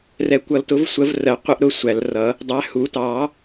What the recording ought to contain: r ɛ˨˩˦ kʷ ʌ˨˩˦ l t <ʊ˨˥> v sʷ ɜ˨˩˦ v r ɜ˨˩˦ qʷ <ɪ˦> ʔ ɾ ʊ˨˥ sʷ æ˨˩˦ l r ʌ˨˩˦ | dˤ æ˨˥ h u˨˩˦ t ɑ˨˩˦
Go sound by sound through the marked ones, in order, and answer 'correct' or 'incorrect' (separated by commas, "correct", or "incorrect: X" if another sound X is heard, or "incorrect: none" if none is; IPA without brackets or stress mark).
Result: correct, correct